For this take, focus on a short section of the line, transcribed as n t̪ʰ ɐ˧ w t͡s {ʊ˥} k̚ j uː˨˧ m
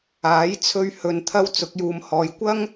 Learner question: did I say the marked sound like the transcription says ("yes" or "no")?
no